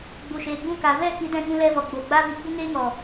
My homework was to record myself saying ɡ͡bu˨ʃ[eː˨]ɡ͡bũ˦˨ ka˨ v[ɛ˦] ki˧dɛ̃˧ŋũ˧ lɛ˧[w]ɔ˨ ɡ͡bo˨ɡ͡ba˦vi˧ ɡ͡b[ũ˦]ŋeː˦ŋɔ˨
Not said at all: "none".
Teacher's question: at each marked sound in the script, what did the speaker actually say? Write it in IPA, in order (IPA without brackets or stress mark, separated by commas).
eː˨, ɛ˦˨, v, u˦